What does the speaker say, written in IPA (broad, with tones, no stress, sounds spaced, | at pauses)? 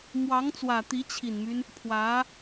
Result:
m w ɑ˧˥ ŋ t͡s w ä˨˩ t̪ i˧˥ t͡ɕʰ i˨˩ n m y˦ n | pʰ w ä˧˥